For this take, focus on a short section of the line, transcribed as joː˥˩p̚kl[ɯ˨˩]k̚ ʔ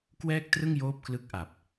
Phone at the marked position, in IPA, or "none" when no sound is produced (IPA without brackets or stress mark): ɯ˦˥